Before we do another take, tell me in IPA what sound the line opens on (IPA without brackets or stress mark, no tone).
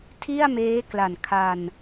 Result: tʰ